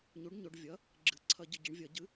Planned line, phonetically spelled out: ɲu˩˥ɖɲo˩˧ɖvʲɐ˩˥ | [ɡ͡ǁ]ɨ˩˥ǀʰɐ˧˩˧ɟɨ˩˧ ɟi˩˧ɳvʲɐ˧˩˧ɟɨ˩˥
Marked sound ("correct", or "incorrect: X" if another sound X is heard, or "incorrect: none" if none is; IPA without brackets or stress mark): correct